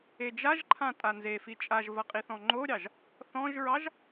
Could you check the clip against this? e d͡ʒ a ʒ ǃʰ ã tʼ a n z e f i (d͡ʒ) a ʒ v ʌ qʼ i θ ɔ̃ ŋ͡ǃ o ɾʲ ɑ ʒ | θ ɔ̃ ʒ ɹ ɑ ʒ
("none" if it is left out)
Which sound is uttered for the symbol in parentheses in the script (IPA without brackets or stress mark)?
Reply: t͡ʃʼ